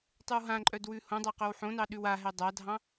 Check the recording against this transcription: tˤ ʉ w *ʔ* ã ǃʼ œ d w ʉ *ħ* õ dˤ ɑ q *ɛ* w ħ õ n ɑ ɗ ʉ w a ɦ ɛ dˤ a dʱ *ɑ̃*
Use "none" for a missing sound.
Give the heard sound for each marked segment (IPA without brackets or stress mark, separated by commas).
ɦ, h, œ, ɑ̃